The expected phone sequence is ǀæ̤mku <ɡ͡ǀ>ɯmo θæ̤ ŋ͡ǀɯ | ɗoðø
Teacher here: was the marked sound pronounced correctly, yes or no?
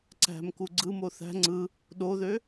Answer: yes